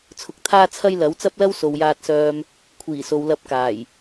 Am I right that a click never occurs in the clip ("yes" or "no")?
yes